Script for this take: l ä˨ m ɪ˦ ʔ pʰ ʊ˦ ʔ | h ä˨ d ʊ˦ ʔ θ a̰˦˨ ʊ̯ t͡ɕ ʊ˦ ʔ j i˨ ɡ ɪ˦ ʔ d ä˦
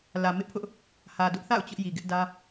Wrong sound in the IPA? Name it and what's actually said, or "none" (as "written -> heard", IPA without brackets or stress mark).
none